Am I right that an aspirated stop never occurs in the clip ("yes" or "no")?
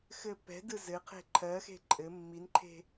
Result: no